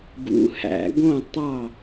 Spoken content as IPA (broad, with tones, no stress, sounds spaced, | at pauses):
ɡ ṵ˨˦ h æ̰˨˩˦ ɡ õ˥˨ tˤ ɑ˥˨